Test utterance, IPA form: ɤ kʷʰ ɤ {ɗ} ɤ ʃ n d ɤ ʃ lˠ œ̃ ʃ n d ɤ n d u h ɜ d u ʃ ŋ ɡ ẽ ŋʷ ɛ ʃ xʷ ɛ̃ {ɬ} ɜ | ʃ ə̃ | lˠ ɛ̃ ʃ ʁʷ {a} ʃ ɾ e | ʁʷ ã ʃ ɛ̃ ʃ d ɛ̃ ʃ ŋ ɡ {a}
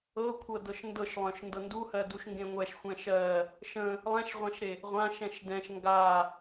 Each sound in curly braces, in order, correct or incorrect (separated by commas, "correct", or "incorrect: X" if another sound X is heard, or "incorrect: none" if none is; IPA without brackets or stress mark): incorrect: d, incorrect: ʃ, incorrect: ã, correct